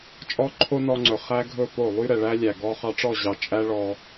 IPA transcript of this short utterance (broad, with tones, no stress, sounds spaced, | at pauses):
t͡ʃʼ ɔ˦ ǃʰ o˦ n ɔ˧ ŋ͡ǀ ɵ˨ χ æ˦ ɡʱ ɵ˦˨ p o˦˨ lˠ y˦ ɾ ɛ˨ ɭ æ˦ lʲ æ˨ ɡ ɔ˧ χ ɑ˧ ʈ͡ʂ ɔ˦˨ ʑ ɑ˨ t͡ʃʼ æ˦ ɭ ɔ˧